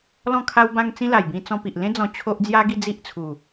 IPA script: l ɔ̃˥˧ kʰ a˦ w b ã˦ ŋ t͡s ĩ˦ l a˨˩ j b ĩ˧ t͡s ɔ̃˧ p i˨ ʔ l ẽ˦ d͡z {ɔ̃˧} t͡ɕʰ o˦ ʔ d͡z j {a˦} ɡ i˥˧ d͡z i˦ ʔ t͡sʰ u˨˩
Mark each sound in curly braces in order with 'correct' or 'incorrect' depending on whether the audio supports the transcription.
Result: correct, correct

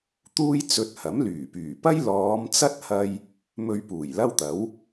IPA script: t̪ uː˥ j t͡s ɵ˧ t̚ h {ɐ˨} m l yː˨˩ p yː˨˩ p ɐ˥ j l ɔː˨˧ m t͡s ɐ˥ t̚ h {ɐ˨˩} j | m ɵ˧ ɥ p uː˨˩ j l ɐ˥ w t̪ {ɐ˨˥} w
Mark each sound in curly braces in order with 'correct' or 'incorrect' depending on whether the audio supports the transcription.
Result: incorrect, incorrect, correct

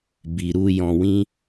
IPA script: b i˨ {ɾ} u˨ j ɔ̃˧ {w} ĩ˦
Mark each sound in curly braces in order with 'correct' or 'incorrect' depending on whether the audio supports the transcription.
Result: correct, correct

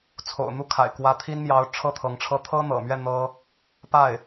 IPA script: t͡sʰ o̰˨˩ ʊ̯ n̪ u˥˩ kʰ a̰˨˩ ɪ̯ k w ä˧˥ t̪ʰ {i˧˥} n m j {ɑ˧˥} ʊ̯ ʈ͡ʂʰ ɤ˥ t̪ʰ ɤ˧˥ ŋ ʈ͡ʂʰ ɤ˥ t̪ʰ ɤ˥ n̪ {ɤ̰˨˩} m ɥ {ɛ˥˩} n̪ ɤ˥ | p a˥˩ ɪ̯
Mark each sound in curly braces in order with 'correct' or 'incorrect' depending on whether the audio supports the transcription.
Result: incorrect, correct, correct, correct

